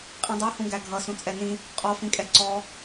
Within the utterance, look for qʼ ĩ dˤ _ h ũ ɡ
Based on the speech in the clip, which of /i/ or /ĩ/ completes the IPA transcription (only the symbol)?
i